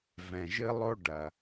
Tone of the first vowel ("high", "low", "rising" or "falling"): low